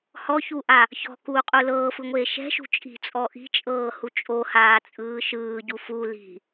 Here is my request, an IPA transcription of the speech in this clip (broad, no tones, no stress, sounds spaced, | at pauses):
h ɔ ç u ʔ a | ç ɔ̤ k uː qʼ u l ɤː f ɯ ŋʷ eː ʃ ɛ̤ ʃ ṳ t͡ʃʼ i̤ t͡sʼ ɔ ʔ i̤ t͡ʃʼ ɤː h u t͡ʃʼ o h aː t͡sʼ ɯː ʃ ɯː ɟ u f u l i̤